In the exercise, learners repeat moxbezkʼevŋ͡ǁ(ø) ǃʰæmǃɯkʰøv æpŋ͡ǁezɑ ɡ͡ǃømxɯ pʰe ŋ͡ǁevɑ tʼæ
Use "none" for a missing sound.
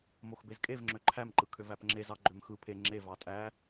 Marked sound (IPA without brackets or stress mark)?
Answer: ø